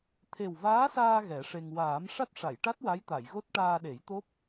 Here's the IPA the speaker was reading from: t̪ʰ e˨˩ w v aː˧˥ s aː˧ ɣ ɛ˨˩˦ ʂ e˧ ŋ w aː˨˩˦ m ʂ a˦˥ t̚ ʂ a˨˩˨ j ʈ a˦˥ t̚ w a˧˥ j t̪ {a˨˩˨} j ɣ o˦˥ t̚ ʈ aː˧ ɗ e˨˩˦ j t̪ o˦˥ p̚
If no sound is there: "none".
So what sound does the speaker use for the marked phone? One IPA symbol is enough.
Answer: a˨˩˨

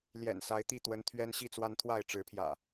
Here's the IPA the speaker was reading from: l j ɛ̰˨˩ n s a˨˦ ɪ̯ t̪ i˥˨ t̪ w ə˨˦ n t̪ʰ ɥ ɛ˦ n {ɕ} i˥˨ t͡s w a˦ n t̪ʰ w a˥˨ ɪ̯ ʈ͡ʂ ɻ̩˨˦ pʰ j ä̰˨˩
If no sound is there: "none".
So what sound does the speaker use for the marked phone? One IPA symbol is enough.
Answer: ɕ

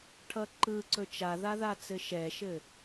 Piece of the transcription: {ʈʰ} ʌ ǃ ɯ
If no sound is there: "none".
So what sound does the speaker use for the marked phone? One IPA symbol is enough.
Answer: ʈʰ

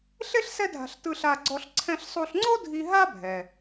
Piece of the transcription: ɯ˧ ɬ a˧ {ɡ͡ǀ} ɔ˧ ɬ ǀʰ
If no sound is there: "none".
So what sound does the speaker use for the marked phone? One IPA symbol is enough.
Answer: ɡ͡ǀ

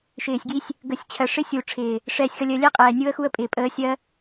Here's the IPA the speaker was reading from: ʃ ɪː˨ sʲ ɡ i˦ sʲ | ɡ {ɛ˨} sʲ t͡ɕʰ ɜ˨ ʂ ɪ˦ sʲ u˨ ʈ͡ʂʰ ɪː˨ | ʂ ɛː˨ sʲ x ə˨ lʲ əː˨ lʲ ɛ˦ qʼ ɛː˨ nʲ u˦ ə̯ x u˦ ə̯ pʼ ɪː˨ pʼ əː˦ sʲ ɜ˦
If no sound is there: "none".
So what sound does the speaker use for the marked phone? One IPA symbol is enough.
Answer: ə˨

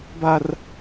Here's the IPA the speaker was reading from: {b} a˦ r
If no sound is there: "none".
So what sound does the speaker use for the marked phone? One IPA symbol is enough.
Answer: b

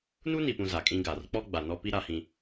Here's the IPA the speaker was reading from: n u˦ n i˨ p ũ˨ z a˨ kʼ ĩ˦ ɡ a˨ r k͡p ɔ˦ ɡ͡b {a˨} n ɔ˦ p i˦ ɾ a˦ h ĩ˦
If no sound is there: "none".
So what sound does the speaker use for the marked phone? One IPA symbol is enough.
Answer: a˨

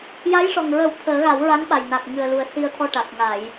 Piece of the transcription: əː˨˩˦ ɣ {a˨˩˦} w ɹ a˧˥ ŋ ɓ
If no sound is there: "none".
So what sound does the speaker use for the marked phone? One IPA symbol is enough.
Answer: a˨˩˦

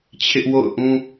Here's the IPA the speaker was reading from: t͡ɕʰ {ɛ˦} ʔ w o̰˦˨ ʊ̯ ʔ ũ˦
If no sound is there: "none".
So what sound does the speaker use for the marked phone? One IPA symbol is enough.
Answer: ɪ˦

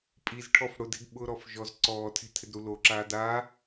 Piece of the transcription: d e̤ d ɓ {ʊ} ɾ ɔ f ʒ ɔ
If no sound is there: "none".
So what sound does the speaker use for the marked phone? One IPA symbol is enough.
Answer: ʊ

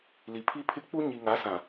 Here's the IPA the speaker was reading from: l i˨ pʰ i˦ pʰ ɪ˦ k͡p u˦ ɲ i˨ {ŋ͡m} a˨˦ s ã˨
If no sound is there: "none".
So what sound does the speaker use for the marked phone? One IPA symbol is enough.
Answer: ŋ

